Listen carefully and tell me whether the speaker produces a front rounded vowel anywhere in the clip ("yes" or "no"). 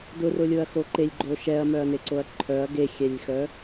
yes